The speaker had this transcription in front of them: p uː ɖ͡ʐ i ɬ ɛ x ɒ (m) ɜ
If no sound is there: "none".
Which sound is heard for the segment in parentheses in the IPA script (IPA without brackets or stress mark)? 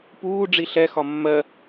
mː